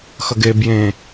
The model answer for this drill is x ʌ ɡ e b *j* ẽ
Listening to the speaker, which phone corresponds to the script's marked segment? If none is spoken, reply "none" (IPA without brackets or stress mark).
j